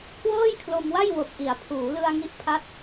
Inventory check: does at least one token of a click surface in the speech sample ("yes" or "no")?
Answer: no